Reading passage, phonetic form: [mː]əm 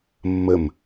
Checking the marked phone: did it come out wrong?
no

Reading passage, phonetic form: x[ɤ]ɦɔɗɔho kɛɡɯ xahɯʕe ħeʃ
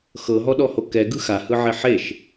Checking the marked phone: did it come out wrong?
no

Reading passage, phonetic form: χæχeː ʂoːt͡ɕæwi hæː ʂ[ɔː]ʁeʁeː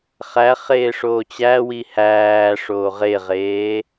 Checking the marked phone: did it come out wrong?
yes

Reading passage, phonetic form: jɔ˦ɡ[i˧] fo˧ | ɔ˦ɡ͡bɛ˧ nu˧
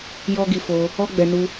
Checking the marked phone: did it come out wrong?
no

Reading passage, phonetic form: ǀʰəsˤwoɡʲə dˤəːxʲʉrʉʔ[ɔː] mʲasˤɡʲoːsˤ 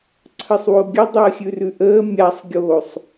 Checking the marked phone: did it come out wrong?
yes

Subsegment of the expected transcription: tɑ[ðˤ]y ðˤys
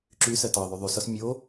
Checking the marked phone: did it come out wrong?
no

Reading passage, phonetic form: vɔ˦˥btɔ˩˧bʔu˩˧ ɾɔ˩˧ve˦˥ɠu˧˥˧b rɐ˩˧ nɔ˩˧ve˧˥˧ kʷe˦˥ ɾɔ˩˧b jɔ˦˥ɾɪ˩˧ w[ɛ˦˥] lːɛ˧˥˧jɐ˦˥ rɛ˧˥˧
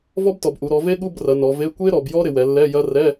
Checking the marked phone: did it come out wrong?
yes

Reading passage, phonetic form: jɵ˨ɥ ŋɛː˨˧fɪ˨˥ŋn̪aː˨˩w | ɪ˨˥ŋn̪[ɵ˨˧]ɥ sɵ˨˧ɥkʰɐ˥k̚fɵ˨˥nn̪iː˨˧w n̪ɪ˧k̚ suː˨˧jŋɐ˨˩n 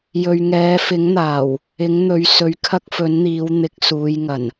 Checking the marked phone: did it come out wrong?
yes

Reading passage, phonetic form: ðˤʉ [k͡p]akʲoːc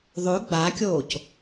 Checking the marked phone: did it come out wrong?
yes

